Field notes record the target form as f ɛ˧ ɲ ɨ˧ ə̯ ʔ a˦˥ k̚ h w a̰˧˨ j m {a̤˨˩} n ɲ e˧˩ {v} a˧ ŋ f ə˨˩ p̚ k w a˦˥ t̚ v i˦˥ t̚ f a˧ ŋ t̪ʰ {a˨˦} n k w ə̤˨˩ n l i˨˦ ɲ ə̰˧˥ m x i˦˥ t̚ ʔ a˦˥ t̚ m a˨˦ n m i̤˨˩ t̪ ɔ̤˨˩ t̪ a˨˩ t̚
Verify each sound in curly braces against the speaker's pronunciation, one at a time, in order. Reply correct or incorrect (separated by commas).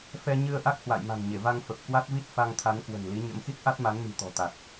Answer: correct, correct, correct